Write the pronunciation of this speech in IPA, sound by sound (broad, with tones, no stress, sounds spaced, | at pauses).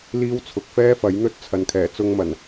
l iː˥ w t͡sʰ ʊ˨ k̚ f ɛː˥ f ɐ˨˥ j n̪ ɵ˥ t̚ t͡sʰ ɐ˨ n kʰ ɛː˨˩ t͡s ʊ˧ ŋ m ɐ˨˩ n